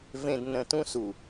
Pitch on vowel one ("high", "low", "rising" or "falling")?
low